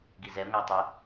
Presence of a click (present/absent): absent